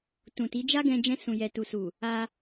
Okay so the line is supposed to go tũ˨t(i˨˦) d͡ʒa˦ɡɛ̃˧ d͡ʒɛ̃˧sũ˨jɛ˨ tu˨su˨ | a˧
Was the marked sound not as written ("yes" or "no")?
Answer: no